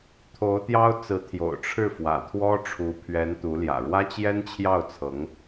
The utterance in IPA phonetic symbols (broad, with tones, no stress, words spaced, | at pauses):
t̪ʰo˧˥ʊ̯t̪jɑ˥ʊ̯t͡sɹ̩˧˥ t̪ʰjo̰˨˩ʊ̯ʈ͡ʂʰɻ̩˥˩fwä̰˨˩t̪ʰwɔ˥ ʈ͡ʂʰu˧˥pʰɥɛ˧˥nt̪u˧˥ljä̰˨˩ ɻwä˥t͡ɕjɛ˥nt͡ɕʰjɑ˥˩ʊ̯t͡sʰɤ˧˥ŋ